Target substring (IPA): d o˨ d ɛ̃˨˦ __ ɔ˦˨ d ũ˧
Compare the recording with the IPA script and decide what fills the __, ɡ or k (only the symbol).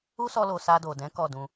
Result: k